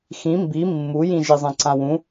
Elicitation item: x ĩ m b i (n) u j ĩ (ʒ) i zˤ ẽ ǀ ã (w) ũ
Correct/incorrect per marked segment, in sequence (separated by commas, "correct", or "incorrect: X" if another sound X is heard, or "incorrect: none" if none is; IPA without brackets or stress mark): incorrect: mː, correct, correct